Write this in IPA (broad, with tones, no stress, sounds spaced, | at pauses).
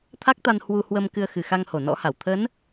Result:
t̪ʰ a˦˥ k̚ t̪ a˧ n h w u˧ h w ə˧ m k ɨ˧ ə̯ x ɨ˨˩ x a˧ ŋ h o˧˩ n ɔ̰˧˥ h a˧˩ w t̪ʰ ə˨˦ n